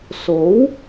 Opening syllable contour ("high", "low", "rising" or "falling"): rising